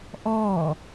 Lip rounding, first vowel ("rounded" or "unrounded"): rounded